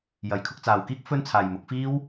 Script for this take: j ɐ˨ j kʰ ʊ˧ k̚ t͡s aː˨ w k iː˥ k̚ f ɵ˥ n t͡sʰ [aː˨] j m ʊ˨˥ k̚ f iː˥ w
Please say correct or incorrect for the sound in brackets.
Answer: correct